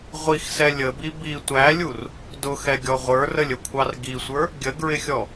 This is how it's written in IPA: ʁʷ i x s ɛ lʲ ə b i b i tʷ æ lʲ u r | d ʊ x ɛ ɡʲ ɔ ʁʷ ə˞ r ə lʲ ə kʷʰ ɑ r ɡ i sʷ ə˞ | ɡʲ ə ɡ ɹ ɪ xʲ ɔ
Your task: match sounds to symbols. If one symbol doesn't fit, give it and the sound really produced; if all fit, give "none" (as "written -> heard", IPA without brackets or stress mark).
none